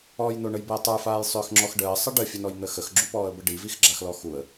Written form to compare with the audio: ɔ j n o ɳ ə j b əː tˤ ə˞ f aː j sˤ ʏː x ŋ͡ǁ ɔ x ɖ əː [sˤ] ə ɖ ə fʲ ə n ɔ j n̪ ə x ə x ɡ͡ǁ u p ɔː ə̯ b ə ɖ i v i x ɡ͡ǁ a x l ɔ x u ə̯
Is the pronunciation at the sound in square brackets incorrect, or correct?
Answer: correct